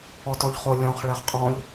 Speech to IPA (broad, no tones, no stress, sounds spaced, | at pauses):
ɔ t ɔ ʎ χ o lʲ ɔ̃ χ ɭ ɛ χ qʼ ɔ̃ ʎ